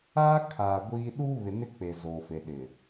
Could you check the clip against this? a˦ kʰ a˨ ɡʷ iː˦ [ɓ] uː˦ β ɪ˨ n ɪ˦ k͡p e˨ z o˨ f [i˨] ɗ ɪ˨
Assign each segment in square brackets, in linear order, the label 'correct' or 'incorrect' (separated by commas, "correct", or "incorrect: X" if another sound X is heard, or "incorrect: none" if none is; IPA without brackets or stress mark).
incorrect: ɗ, incorrect: e˨